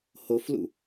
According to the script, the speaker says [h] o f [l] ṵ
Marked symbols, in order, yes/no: yes, yes

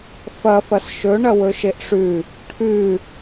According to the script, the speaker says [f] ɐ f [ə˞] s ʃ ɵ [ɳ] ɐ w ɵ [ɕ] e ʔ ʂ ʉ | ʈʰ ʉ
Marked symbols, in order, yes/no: yes, no, yes, no

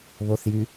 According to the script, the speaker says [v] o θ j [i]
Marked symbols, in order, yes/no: no, no

